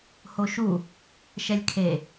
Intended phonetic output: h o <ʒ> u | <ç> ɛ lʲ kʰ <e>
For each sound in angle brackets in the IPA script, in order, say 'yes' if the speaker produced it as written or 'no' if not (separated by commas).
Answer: no, no, yes